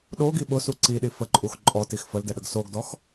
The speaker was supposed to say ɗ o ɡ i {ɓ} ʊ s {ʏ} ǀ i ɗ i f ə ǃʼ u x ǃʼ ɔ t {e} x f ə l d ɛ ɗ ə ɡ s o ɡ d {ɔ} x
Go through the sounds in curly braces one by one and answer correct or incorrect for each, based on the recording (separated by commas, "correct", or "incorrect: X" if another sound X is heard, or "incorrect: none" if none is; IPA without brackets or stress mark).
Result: correct, incorrect: u, incorrect: i, correct